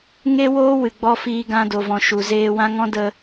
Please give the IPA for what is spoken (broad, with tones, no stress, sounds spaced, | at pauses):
ŋ e˦ w oː˦ w ɨ˨ ɡ͡b ɔ˧ f iː˧ ɡ ã˧ d o˨ v ɔ̃˨ ʃ u˨ z eː˧ w ã˦ ŋ ɔ̃˦ d ə˧